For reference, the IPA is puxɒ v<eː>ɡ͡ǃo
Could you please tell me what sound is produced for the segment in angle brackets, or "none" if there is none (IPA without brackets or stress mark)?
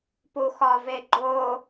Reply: e